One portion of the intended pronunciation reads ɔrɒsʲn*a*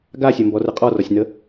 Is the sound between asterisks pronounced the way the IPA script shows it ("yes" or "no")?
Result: no